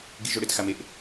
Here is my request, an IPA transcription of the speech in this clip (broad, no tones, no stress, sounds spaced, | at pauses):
ɡ i ʒ o ɽ ɪ t x a m e ʔ